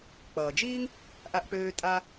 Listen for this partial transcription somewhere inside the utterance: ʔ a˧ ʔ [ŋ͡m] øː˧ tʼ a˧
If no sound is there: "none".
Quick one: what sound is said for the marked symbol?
k͡p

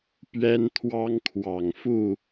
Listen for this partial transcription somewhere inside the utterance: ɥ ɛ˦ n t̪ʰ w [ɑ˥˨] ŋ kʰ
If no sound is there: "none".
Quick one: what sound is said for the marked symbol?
ɑ˦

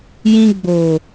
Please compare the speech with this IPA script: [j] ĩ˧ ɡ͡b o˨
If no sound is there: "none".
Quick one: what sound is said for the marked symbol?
j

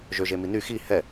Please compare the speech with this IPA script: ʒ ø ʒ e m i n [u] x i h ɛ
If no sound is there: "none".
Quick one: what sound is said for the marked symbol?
y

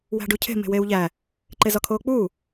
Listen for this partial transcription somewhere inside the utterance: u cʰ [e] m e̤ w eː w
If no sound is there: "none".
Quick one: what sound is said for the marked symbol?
e̤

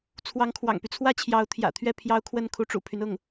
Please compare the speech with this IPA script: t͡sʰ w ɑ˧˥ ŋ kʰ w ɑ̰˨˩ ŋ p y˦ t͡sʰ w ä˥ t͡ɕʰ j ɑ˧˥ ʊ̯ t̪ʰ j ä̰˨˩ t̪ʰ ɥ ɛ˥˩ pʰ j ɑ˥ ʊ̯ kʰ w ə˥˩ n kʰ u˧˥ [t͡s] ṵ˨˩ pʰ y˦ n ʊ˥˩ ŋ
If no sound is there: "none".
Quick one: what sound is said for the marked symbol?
ʈ͡ʂ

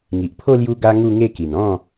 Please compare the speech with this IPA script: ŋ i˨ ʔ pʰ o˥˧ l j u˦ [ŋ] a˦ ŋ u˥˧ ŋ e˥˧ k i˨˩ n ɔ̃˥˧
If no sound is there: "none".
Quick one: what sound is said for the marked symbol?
ɡ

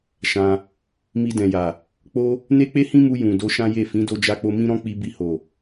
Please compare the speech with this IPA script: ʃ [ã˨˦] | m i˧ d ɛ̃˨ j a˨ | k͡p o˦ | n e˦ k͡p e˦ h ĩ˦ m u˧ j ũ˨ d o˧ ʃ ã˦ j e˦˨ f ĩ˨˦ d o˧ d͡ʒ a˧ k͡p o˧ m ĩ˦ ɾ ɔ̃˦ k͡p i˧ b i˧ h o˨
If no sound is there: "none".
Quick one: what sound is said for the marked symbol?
ã˧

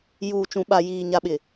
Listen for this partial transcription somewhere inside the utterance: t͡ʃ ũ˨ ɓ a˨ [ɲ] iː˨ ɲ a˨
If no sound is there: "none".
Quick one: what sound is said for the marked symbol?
j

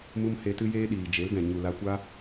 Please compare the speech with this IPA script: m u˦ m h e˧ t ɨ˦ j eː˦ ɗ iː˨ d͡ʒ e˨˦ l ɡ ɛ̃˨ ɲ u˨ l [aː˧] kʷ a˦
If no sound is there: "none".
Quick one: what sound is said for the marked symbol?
a˧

